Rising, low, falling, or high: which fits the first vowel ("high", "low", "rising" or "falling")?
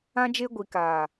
high